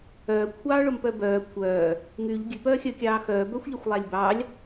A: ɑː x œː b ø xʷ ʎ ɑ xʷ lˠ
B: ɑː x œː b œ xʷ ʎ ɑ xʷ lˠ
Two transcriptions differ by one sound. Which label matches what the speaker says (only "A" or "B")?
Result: B